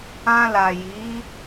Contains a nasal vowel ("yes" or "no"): yes